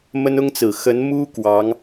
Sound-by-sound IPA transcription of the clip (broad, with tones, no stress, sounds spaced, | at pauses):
m ə˥ n ʊ˥ ŋ t͡s ɹ̩˨˩ x ə˧˥ n m u˥ k w ɑ˧˥ ŋ